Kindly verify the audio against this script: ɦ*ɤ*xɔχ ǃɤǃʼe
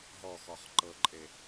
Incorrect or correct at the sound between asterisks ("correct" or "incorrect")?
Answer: incorrect